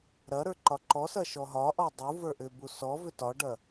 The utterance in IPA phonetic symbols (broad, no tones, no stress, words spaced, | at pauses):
ɾɐɾə˞ ǃɒǃɔsɐ ʃɔɦɒʔɔ dˤu və˞ʔʏbu sɔ vʏtɒɖɐ